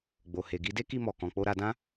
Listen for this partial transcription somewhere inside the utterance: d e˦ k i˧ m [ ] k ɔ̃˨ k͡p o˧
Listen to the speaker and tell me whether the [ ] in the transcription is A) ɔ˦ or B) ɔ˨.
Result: B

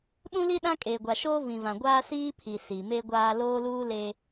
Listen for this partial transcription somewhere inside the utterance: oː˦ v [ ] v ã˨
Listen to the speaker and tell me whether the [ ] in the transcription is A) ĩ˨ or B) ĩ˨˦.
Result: A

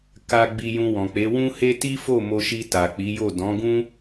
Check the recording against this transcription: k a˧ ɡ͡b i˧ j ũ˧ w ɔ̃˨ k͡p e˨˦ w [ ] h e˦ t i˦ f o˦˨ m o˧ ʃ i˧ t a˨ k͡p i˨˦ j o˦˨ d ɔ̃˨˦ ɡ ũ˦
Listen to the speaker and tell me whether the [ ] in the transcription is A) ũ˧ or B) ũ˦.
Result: B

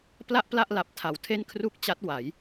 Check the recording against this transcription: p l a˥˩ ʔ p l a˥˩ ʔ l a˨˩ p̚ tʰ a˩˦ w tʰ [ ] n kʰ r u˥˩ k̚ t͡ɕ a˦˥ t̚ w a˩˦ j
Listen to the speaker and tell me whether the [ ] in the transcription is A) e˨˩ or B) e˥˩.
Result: B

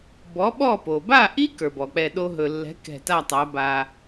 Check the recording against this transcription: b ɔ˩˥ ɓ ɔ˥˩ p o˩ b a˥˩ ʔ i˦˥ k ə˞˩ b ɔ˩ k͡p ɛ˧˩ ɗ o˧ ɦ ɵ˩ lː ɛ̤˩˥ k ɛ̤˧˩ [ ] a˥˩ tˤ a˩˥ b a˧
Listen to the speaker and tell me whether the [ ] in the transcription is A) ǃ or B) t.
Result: B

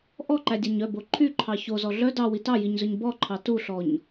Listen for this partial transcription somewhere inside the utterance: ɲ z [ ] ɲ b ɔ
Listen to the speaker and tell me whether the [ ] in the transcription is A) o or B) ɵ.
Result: B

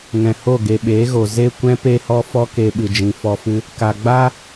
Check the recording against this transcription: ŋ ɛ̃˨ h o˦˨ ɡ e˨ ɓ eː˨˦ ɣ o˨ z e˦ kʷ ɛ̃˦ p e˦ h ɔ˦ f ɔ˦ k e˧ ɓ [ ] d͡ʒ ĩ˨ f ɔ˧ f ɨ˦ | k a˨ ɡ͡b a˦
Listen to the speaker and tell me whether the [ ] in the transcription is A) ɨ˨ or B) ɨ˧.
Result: A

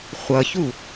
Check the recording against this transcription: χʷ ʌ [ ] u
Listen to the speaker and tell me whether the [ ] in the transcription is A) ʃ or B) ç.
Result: B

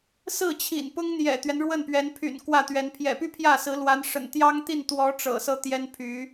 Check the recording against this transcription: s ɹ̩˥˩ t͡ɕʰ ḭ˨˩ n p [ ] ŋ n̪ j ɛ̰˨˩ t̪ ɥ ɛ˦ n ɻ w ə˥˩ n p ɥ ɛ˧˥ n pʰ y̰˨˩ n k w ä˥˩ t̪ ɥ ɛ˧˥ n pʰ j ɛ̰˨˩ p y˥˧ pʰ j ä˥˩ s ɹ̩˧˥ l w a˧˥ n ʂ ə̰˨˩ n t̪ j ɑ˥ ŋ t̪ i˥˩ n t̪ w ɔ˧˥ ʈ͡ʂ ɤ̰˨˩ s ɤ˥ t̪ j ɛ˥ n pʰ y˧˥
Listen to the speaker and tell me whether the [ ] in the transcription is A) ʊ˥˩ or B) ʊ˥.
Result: B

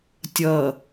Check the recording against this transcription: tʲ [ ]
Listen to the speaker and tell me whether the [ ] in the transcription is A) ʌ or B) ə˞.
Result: A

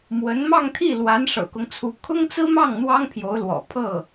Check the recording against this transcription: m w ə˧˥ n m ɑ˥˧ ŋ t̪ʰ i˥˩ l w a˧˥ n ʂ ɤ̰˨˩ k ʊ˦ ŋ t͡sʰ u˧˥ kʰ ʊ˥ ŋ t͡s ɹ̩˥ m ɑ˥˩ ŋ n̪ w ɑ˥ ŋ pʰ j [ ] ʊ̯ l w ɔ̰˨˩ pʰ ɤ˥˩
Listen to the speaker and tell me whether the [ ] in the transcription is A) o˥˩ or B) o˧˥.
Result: B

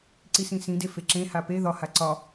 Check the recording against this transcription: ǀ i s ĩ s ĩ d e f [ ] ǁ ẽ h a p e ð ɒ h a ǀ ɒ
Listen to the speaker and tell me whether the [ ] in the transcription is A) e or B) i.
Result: A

